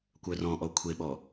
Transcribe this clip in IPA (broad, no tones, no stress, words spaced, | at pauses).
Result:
kʷœrɔ̃ʔɔ kʷʰeɓɔ